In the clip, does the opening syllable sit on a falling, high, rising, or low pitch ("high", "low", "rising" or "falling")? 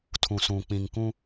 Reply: low